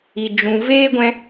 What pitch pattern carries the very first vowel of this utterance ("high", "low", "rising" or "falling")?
low